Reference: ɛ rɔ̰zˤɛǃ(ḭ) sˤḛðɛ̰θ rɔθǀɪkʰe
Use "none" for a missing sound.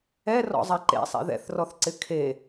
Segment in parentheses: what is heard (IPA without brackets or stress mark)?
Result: ḛ